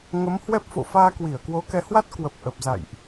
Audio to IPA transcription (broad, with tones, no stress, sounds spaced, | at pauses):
ŋ ə˨˦ m h w ɛ˦˥ p̚ f o̰˧˨ f aː˧ k w i˧˩ ə̯ k w o˨˦ k ɛ˨˦ h w a˦˥ t̚ k w ə˨˩ p̚ ʔ ə˨˩ p̚ z a̰˧˨ j ʔ